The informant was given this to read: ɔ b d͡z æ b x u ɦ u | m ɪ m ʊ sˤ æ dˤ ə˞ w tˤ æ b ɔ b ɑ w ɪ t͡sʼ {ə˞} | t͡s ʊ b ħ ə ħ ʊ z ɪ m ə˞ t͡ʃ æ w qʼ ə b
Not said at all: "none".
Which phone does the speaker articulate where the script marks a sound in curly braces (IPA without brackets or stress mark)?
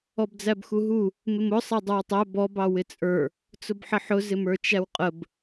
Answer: ə˞